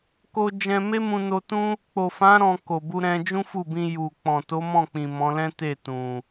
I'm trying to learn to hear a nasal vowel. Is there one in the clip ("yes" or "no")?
yes